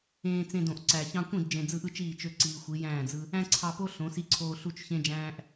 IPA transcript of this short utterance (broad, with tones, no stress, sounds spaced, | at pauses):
ẽː˧ t͡s ẽ˧ d õ˨ ʔ ǀ æ˨ ç ɑ̃˧ kʷ ĩ˦˨ d d͡ʒ ẽ˨ d͡z ɯ˧ ʔ ɯ˦ t͡ʃ iː˦˨ t͡ʃ ø˦ ǀ iː˧ xʷ i˨˦ j æ̃ː˦˨ d͡z ɯ˧ | æ̃˦ ǀʰ ɑ˧ p o˦ ɬ õ˨˦ s i˦ ǀʰ oː˦ ɬ u˦ t͡ʃ ç ẽ˦ d͡ʒ æ̃ː˦ ʔ